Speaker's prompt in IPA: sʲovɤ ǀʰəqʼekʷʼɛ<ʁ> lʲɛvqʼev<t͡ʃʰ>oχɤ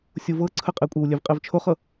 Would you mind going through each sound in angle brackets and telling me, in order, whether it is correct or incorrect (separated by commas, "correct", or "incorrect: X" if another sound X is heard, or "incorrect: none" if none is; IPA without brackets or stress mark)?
incorrect: w, correct